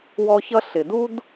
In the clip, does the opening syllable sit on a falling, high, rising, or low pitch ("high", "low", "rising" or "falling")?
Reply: high